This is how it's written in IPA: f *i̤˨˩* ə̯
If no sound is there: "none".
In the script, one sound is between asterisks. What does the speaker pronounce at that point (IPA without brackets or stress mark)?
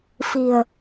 i̤˨˩